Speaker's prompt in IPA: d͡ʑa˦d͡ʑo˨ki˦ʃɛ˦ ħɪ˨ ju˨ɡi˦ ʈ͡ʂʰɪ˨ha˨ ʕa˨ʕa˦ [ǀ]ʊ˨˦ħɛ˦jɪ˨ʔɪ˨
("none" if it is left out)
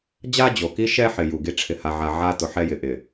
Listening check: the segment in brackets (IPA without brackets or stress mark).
t